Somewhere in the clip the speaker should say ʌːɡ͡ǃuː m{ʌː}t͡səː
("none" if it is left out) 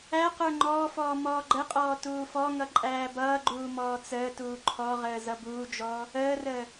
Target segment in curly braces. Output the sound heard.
ɔː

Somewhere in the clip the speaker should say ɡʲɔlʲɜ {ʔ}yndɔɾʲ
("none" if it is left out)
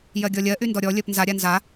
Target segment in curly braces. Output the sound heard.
ʔ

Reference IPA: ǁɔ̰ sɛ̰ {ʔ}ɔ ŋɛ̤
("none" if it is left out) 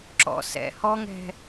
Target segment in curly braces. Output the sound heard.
h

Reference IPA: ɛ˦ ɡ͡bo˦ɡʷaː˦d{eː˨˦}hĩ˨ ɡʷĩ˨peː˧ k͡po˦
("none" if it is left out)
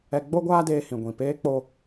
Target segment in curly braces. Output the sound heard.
eː˧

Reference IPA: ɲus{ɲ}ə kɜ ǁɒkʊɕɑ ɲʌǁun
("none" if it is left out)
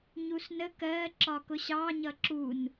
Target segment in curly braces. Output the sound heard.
n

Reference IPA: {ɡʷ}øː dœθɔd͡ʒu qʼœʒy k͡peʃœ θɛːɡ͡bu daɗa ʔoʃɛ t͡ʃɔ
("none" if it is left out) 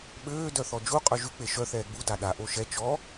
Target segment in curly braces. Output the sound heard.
ɓ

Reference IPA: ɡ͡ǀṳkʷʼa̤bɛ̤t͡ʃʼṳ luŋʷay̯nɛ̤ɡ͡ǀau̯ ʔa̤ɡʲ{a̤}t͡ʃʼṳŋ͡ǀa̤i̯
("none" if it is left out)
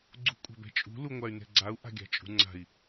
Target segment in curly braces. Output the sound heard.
a̤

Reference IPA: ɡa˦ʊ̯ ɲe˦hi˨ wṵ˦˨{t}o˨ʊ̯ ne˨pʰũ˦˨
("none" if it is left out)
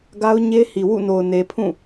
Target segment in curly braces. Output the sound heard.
n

